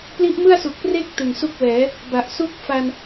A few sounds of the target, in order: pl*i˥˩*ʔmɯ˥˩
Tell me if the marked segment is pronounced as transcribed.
no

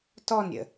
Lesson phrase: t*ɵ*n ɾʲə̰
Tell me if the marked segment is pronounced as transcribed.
no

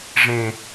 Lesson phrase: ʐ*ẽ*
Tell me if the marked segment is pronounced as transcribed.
yes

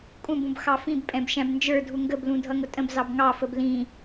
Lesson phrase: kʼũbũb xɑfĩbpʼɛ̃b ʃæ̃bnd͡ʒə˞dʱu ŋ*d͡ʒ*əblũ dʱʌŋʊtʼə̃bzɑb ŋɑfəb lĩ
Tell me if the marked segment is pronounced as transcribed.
no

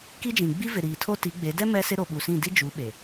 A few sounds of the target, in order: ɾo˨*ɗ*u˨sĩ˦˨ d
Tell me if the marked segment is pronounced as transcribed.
no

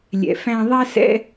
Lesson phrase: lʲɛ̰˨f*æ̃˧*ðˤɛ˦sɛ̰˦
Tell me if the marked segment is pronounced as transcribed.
yes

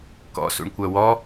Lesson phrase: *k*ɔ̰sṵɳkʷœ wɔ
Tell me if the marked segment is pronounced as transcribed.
yes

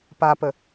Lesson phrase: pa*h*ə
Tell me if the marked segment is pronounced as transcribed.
no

